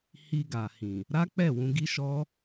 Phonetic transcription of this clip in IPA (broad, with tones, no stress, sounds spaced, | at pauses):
h i˧ ɡ a˨ h ĩ˨ | ɾ a˦ k͡p ɛ˦˨ w ũ˧ ɡ i˦ ʃ ɔ˦